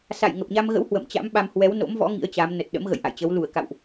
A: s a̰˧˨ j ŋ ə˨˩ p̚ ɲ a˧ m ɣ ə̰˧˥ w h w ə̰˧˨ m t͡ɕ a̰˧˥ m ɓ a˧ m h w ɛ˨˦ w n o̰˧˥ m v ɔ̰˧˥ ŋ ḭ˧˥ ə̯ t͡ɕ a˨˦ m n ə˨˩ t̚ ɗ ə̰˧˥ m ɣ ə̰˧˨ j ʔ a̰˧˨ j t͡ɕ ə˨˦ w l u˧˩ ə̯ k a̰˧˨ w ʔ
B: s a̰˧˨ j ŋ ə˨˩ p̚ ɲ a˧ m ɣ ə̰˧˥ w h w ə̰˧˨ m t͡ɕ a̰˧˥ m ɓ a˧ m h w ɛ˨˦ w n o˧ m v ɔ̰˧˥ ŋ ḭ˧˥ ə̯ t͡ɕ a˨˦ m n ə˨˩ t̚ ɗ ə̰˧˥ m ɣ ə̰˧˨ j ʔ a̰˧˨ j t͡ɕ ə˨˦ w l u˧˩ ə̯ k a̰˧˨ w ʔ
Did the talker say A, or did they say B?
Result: A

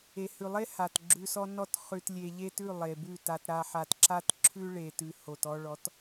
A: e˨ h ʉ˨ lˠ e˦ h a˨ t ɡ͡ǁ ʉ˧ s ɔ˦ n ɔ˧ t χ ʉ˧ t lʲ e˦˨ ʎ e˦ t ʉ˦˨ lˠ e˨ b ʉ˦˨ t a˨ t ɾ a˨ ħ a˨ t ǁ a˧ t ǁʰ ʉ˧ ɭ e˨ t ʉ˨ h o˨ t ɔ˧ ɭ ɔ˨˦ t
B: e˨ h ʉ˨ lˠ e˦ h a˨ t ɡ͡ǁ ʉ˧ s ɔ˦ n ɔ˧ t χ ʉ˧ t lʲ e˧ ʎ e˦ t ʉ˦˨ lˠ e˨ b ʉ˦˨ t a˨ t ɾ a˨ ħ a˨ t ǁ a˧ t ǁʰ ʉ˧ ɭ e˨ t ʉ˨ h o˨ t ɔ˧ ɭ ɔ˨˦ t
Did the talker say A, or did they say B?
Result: B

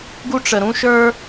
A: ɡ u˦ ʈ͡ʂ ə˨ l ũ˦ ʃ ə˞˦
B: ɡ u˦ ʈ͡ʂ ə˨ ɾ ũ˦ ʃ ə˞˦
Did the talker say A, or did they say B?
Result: B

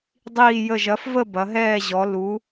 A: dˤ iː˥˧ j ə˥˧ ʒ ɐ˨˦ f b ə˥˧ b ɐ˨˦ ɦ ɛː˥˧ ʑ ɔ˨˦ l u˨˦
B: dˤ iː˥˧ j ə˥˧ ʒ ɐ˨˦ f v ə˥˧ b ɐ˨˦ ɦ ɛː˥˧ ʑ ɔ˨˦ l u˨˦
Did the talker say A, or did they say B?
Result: B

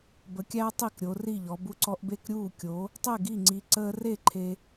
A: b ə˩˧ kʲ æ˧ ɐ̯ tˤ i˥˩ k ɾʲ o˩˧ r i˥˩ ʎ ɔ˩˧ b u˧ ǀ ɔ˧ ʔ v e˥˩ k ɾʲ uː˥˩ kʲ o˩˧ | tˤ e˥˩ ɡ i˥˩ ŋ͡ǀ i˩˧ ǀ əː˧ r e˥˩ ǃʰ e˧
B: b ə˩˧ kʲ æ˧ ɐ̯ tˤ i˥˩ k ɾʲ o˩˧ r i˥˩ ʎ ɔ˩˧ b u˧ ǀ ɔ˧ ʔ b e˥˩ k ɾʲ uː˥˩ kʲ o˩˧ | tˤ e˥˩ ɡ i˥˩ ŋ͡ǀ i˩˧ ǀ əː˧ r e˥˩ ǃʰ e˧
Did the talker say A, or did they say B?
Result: B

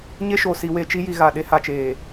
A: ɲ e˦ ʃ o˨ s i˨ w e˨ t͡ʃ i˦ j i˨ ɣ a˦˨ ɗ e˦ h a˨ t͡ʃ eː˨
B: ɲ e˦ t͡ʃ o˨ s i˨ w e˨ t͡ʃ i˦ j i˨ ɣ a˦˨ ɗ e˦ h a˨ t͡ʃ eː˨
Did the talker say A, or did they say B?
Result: A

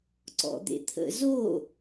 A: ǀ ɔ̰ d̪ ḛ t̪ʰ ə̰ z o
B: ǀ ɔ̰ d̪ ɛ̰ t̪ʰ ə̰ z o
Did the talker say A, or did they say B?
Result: A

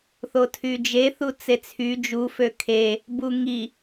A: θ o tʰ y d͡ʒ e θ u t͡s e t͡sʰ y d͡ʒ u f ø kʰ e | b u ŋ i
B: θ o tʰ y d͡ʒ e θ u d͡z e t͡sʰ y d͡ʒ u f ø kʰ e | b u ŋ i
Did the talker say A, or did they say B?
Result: A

